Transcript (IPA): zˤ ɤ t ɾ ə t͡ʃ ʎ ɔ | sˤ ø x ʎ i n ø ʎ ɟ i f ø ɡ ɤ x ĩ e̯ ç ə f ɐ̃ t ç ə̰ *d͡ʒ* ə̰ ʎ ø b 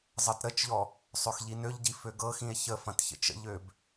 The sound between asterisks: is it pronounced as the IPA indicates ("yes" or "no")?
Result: no